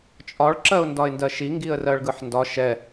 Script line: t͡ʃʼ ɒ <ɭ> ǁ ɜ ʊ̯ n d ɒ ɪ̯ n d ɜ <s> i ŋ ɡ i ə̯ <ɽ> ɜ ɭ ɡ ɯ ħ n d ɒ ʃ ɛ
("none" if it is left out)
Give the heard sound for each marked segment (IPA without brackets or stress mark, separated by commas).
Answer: ɭ, ʃ, r